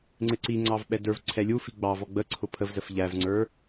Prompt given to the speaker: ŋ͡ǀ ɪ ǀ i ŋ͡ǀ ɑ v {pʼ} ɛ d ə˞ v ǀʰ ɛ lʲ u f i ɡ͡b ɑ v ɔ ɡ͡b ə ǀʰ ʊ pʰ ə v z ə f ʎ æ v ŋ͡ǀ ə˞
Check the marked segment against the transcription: incorrect: ɓ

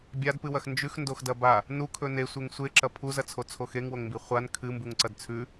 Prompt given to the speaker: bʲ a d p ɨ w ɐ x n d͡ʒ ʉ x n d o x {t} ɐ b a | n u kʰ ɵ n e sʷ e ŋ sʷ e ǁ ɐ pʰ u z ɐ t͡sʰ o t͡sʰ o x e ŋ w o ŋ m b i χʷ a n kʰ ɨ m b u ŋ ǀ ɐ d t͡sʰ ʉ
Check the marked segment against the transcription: incorrect: d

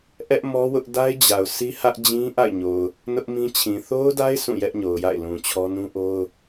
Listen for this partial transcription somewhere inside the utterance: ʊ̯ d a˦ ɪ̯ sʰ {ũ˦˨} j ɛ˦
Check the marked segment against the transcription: correct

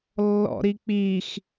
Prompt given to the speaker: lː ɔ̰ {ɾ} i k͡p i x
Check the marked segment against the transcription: correct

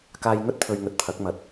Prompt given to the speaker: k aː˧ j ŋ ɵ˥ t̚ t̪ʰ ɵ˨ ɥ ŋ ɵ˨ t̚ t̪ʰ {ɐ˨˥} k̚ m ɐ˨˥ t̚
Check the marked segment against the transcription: correct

